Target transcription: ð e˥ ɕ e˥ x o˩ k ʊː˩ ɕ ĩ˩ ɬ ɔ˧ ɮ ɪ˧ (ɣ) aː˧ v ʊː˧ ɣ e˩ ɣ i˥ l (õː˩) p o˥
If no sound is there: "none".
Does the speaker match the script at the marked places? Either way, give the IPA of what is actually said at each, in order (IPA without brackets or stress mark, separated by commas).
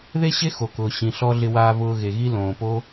w, õː˩